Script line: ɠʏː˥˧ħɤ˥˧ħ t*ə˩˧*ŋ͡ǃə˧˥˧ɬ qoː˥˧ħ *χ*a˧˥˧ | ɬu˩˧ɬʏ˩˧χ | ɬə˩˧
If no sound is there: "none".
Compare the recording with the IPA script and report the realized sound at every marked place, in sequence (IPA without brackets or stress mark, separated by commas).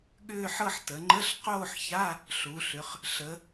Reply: ə˩˧, ç